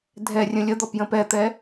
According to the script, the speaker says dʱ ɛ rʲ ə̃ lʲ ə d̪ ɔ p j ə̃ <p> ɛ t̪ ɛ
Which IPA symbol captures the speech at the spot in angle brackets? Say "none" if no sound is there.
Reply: p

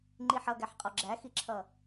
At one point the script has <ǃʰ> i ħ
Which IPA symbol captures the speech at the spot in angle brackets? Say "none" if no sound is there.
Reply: ŋ͡ǃ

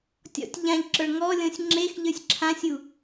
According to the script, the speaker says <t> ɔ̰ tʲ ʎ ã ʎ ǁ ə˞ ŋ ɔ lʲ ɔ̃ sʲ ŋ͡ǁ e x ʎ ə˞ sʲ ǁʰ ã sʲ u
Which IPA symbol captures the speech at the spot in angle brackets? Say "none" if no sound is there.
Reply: tʲ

